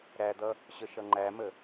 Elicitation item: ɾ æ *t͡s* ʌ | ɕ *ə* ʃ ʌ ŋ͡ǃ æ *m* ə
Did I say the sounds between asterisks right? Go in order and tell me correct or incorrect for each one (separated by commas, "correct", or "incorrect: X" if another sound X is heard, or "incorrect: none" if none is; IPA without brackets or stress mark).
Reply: incorrect: d̪, correct, correct